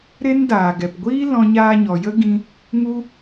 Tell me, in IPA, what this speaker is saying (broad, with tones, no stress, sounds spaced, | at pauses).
ɾ e˦ n d aː˨ ɡ ɛ˨ p ɡʷ iː˦ l ɔ̃˧ ɲ aː˧ ɲ ɔ˨ j ə˦ ɡ ĩ˦ | ŋ u˦